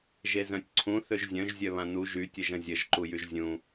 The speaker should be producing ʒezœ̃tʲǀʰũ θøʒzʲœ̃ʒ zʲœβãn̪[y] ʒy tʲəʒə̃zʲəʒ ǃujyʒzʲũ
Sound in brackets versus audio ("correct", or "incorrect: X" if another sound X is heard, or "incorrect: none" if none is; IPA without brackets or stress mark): incorrect: u